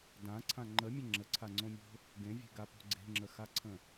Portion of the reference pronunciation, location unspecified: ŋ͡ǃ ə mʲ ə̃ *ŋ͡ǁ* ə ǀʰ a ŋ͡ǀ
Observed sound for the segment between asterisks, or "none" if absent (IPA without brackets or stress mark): ŋ͡ǁ